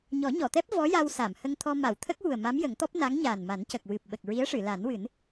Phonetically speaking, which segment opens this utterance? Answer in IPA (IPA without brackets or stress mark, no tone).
ɲ